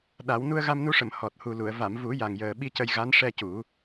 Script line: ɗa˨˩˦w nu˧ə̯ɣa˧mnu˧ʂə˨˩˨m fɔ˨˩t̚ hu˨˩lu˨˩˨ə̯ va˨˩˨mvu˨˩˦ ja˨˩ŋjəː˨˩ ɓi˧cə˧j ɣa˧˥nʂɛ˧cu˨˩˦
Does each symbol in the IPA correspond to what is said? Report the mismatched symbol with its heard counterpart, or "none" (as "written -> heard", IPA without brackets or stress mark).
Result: f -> h